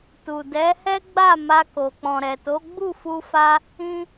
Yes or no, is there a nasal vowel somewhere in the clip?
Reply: yes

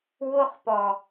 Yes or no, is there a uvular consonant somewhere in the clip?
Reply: yes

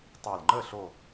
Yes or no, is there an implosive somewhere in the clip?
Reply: no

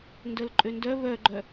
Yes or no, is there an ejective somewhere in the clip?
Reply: yes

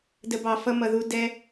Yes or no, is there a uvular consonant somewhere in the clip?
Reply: no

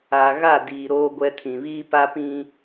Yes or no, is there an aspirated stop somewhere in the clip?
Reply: yes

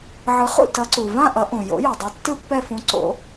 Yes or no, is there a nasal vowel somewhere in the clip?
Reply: yes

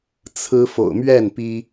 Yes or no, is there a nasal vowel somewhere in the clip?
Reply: no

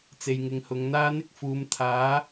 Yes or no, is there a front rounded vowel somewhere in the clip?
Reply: no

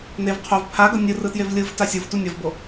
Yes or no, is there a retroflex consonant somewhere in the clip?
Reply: no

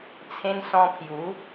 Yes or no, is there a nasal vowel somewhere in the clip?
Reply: yes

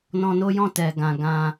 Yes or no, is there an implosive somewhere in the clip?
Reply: no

